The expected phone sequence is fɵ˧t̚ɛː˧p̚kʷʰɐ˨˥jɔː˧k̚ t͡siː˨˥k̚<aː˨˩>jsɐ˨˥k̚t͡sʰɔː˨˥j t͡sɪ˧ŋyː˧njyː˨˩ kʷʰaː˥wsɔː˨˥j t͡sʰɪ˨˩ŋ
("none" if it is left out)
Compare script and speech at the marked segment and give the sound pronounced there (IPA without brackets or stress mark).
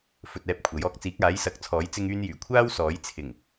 aː˨˥